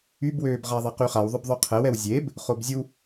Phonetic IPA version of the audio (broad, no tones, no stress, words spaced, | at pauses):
ybwøːbʁa ðˤɛqyχaw ðˤœbðˤœqʰɛw ɛwzʲeb | χobzʲu